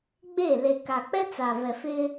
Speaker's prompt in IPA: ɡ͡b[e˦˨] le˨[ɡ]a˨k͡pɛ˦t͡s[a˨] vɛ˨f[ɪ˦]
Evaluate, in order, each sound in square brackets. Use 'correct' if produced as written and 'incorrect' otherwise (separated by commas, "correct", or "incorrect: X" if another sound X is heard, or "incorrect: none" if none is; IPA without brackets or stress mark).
correct, incorrect: k, correct, correct